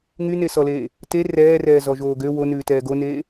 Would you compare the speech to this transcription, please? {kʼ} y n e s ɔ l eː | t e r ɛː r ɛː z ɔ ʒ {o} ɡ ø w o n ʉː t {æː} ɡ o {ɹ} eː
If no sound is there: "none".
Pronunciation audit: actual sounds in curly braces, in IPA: ŋ, oː, ɛː, n

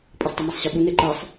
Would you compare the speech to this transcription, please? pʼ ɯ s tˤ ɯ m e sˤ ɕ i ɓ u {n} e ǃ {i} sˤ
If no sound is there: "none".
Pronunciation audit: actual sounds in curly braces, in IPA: n, e

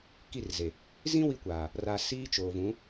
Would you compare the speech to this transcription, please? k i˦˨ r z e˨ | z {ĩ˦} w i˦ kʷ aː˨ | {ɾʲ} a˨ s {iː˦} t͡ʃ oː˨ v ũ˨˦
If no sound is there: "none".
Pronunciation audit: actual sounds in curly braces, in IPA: ĩ˦, r, iː˦

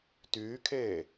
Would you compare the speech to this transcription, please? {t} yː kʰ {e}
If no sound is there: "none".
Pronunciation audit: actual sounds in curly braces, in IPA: t, eː

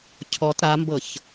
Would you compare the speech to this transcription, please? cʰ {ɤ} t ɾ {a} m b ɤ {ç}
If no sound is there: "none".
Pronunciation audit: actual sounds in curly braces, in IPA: ɔ, a, ç

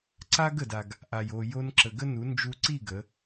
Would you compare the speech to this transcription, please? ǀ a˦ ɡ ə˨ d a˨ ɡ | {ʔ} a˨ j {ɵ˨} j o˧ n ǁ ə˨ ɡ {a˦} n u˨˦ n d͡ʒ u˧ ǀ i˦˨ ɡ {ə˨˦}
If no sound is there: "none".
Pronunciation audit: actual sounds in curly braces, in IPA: ʔ, o˨, ə˦, ə˨˦

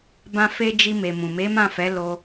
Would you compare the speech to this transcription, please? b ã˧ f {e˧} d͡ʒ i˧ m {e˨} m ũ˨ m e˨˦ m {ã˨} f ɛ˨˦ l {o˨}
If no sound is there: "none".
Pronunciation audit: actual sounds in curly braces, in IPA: e˧, e˨, ã˦˨, o˧

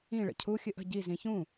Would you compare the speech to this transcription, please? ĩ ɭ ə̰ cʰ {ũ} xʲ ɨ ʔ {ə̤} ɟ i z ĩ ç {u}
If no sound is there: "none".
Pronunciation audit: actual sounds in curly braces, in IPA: u, ə̤, ũ

